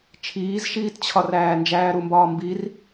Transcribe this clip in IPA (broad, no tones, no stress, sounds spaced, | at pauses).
t͡ʃʰ iː z ʃ iː t t͡ɕʰ ɒ r æː n d͡ʒ æː ɾ u m b ɒː m b i r